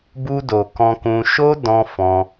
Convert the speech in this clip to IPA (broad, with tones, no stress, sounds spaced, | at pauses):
b u˧ d o˨ k ɔ̃˧ k ũ˧ ʃ o˦ d ɔ̃˧ f ɔ̃˧